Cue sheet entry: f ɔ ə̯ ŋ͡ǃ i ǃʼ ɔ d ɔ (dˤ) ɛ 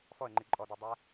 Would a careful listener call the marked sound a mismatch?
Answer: no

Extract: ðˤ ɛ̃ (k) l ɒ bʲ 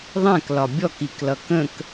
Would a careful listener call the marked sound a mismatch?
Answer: no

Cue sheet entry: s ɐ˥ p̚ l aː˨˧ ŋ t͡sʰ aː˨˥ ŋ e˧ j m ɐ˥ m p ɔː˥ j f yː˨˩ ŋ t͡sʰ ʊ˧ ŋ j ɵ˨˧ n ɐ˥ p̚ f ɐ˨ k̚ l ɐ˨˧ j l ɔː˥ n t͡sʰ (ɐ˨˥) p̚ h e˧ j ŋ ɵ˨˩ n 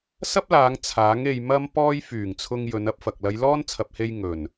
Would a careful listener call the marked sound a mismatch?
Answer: yes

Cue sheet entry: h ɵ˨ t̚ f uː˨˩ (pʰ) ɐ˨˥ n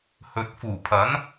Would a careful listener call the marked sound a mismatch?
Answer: no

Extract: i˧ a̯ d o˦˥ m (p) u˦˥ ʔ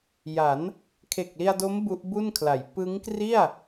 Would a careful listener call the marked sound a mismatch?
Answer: yes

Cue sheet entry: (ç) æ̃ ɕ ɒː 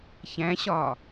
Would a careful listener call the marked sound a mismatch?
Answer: no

